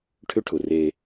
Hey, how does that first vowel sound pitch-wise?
high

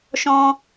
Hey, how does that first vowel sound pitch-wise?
high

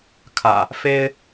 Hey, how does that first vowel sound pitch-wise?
low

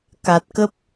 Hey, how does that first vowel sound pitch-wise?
low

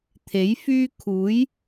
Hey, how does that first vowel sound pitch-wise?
rising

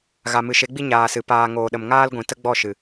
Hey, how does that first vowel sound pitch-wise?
low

